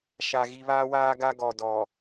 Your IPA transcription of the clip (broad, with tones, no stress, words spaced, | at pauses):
ʃa˨ ɣi˨βaː˦waː˦ɡa˦ ɡɔ˨dɔ˨